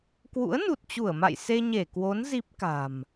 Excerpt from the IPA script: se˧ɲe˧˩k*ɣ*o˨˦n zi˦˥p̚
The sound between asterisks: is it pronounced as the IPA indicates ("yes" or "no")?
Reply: no